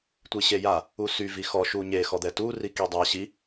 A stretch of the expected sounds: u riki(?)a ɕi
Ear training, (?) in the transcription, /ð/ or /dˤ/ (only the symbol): dˤ